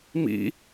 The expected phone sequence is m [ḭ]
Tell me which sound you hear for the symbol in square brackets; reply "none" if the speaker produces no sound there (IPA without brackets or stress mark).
ḭ